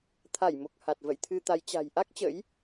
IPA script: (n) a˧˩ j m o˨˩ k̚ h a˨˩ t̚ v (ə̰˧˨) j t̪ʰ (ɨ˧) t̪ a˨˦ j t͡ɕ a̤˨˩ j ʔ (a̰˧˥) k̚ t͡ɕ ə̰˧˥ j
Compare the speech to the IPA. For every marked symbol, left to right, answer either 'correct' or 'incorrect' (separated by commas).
incorrect, correct, correct, incorrect